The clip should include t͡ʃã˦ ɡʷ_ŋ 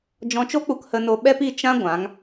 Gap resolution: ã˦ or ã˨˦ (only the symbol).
ã˨˦